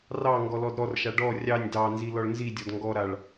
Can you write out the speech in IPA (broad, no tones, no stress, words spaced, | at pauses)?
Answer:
rɑ ŋɡɔlɔdɾɔrʃa ɖɔ rʲɑnʲ dɑnzi lɔɭnzidʲɔd ŋɡɔɾaɭ